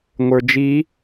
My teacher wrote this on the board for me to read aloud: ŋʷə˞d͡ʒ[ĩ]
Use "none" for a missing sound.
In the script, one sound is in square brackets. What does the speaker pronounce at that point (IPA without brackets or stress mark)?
i